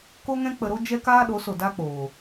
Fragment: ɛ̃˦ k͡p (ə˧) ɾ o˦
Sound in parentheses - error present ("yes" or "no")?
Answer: no